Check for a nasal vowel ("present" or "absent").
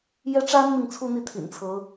absent